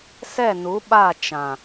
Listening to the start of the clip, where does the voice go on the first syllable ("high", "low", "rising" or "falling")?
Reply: falling